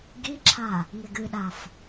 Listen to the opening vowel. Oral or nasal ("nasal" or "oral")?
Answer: oral